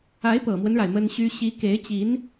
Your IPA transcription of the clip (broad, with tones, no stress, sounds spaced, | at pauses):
a˧˥ ɪ̯ p ɤ˨˩ m w ə˦ n ɻ a˩ ɪ̯ m ə˥ n ɕ y˥ ɕ i˧˥ k e˧˥ ɪ̯ t͡ɕ i˧˥ n